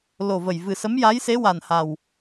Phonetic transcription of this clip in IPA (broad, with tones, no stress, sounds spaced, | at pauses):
l o˨˩ v ə˨˩ j v ɨ˨˩ s ə˧˥ m j a˧˥ j s e˧˥ w a˨˩ n h a˨˩ w